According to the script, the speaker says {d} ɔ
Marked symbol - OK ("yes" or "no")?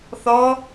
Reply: no